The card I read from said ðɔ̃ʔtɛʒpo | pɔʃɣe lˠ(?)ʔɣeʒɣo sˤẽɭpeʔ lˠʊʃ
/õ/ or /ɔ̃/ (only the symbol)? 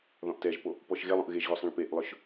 õ